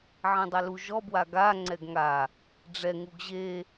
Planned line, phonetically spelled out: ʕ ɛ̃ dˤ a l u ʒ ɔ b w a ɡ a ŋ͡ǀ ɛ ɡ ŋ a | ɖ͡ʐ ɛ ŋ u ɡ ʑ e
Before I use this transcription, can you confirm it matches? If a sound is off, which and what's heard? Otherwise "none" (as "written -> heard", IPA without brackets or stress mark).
none